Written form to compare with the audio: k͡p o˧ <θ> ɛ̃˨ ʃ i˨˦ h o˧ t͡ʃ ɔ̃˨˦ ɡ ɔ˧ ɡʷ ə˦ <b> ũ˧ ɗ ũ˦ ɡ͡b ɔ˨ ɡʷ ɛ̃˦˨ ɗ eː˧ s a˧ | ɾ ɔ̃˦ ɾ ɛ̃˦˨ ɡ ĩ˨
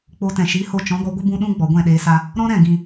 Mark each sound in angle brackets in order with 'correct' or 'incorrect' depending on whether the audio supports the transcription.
incorrect: t, correct

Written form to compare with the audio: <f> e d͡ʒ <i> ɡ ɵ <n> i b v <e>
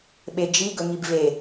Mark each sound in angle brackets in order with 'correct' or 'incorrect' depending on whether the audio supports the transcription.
incorrect: ɓ, correct, incorrect: ŋ, correct

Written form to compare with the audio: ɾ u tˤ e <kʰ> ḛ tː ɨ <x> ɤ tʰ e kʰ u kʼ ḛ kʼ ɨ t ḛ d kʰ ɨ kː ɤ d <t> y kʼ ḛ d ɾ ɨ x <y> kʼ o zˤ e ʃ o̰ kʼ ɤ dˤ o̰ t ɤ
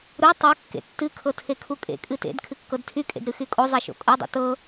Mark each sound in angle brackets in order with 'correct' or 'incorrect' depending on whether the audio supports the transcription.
incorrect: kː, incorrect: kʰ, incorrect: tʰ, correct

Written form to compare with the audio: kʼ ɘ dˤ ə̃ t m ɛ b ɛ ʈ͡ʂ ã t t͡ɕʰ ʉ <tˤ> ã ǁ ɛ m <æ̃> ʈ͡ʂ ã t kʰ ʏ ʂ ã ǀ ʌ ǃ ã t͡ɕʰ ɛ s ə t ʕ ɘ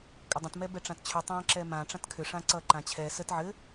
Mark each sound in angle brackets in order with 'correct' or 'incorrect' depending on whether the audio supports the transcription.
correct, incorrect: ã

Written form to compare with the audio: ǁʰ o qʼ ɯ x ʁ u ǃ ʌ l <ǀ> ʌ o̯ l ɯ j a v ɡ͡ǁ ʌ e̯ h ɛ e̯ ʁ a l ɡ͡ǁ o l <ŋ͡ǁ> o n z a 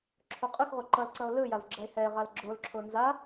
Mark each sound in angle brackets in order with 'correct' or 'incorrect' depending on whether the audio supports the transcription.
correct, incorrect: ǁʰ

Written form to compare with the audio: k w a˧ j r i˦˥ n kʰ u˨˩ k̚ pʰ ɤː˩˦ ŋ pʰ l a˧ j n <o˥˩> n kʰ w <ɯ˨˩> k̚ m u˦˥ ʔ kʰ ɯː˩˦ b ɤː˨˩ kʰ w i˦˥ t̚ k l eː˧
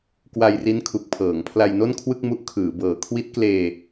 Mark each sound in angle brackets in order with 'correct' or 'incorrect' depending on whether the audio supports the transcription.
correct, incorrect: ɯ˥˩

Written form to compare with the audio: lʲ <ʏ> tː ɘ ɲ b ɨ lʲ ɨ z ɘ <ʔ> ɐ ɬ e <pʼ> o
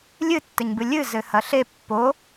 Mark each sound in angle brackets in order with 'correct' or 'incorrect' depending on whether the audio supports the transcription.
incorrect: ɨ, incorrect: h, incorrect: pː

